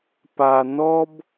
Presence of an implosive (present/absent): absent